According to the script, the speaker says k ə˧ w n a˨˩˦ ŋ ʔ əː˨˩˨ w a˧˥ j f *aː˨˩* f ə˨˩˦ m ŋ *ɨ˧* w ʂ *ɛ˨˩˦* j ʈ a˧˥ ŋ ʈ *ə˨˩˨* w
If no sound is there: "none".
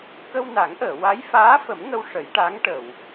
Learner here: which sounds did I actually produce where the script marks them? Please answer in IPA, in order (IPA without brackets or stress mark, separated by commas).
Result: aː˧˥, ə˧, ə˨˩˦, ə˨˩˨